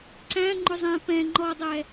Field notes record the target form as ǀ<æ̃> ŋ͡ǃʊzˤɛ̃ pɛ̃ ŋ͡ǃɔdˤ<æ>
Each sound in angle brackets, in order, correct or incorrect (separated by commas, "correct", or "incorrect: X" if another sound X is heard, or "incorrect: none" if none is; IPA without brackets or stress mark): correct, incorrect: ɛ